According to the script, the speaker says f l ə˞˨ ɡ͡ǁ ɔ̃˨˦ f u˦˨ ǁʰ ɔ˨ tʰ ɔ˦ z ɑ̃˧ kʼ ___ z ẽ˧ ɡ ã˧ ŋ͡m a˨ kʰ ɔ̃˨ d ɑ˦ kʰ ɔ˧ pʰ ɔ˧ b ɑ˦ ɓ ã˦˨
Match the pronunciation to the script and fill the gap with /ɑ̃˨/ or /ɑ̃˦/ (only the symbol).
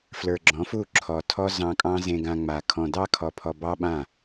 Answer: ɑ̃˦